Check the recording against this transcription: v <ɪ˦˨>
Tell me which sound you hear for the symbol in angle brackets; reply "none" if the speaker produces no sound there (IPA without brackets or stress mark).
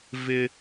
ɪ˨